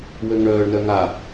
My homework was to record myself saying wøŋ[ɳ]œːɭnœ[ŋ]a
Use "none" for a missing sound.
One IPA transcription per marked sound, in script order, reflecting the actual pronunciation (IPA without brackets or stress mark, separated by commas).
ɳ, ŋ